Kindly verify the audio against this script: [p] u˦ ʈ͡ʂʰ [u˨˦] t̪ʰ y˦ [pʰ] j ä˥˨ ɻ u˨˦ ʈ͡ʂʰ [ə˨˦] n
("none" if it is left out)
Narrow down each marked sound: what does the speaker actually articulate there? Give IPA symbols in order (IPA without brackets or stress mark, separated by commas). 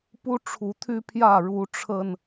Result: p, u˨˦, pʰ, ə˧